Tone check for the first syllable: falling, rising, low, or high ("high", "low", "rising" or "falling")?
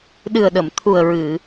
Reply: low